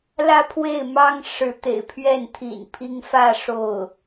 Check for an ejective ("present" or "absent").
absent